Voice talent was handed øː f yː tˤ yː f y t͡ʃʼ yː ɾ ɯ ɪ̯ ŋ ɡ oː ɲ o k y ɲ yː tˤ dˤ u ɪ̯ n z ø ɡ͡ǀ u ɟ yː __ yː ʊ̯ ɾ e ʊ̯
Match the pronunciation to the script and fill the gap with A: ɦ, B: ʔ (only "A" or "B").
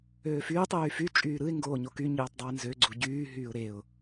A